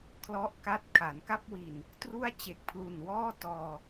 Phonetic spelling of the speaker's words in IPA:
kʰ l ɔ˥˩ ʔ k a˥˩ t̚ kʰ a˩˦ n k a˥˩ p̚ w i˨˩ n | t r u˥˩ a̯ t͡ɕ e˨˩ k̚ pʰ l u˨˩ n w ɔː˥˩ t ɔː˧

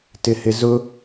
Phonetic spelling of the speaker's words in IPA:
t ɪ h ɪ z ʊ

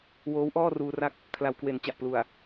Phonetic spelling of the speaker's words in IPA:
w oː˦˥ w ʔ ɔː˥˩ r uː˧ r a˥˩ k̚ | kʰ l a˩˦ w k w e˩˦ n t͡ɕ a˨˩ ʔ p l u˨˩ a̯

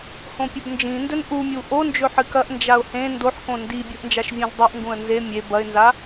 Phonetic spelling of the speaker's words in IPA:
h õ pʲ ɵ b n d͡ʒ ĩ n d ɵ n ʔ u mʲ u ʔ o n d͡ʒ ɵ ħ ɨ k ɐ ʔ n d͡ʒ a ʊ̯ h ẽ n d o ħ k õ n d i bʲ u ʔ n d͡ʒ a ʃ vʲ õ z dˤ u ʔ ŋ ɡ ũ ə̯ n z e mʲ e b ɐ ɪ̯ n z a

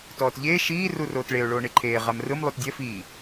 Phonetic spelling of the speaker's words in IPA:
t ɔː t ʎ eː ʃ iː r u r oː t ɭ e ʊ̯ ɭ oː ɳ e ǃʰ eː ʁ a m r ɯ m lˠ u t dʲ ɛ f iː

